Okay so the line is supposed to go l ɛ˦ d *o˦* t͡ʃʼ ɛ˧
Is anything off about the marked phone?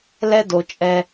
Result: yes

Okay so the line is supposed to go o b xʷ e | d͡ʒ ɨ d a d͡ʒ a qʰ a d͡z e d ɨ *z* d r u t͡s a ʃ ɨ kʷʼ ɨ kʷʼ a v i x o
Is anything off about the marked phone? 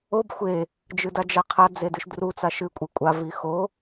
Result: yes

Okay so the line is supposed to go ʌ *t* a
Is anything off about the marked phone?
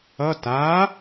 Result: no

